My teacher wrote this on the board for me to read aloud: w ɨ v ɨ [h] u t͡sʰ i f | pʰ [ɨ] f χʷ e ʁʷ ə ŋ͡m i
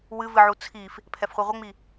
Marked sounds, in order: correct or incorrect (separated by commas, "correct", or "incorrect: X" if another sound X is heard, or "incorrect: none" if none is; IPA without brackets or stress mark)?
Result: incorrect: ʕ, incorrect: ɛ